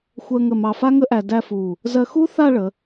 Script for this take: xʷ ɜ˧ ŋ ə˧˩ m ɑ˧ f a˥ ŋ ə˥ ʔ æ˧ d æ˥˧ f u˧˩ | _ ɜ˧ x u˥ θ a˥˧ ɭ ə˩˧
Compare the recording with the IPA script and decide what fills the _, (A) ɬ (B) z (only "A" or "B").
B